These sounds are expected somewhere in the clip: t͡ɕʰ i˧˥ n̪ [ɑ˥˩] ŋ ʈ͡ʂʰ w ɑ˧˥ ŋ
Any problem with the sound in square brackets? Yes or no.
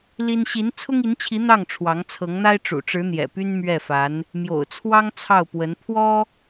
no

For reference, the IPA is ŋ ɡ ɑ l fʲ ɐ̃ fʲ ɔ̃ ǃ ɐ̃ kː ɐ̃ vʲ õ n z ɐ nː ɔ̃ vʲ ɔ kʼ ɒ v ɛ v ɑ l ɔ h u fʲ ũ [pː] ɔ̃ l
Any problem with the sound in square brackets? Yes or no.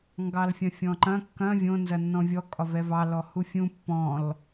no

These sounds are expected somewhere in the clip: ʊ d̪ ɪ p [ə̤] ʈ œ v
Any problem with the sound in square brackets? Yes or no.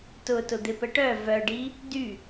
yes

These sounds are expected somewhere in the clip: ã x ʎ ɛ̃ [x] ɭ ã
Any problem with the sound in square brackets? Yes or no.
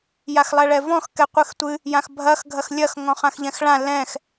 no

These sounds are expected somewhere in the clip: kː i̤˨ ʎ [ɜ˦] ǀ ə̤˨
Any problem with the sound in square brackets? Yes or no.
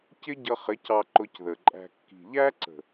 yes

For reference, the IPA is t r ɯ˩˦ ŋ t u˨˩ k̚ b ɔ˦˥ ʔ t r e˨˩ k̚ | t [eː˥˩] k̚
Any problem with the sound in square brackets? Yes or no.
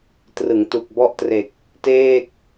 no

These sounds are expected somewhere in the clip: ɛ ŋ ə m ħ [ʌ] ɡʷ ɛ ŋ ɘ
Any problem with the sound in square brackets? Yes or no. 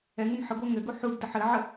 yes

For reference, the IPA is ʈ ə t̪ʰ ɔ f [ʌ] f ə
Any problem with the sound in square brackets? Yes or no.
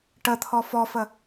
yes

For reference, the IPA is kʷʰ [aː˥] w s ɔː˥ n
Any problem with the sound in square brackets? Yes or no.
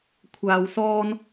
yes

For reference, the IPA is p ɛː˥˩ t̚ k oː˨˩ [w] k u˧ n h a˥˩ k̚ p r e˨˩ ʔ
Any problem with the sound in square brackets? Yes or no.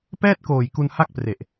yes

